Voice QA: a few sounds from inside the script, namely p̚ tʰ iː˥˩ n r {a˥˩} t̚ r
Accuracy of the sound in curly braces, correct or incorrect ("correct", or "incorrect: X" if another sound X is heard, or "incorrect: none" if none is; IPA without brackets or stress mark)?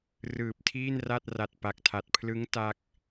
correct